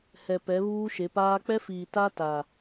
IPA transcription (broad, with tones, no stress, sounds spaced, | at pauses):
h ɛ˨ p ɛ˨˦ β uː˦ ʃ e˨˦ p aː˦ k͡p ɛ˦ f iː˨ t a˦ t a˨